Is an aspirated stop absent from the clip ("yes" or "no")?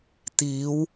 yes